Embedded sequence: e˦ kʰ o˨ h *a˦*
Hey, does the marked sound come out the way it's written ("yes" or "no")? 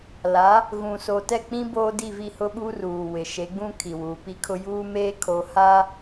yes